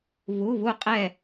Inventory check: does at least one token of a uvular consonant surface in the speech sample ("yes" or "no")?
yes